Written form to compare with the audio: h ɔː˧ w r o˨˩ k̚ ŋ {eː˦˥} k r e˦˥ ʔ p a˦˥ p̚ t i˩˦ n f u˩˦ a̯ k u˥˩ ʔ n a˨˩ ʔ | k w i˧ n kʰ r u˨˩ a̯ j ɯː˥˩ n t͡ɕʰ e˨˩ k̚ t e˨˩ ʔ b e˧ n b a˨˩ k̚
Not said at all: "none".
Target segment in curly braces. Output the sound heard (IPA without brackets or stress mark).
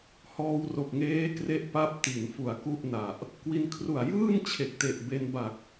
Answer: eː˦˥